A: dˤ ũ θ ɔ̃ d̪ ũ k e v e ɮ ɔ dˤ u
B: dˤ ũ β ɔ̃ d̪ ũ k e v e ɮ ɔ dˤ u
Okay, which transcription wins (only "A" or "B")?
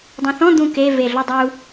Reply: A